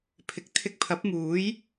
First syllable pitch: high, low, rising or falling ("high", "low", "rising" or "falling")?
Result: rising